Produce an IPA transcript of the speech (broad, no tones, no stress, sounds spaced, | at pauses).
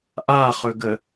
ʔ a χ ɵ ɡ ə